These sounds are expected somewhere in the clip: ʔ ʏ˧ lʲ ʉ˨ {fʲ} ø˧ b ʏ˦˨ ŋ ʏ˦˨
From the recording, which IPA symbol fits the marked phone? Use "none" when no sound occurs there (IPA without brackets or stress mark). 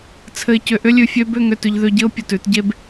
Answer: fʲ